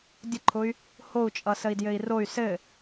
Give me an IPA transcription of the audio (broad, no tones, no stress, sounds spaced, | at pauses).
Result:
dʲ ə ǃʰ ʊ y̯ | h o u̯ t͡ʃʼ ʌ s ə i̯ d j ɘ i̯ r o y̯ s ɘ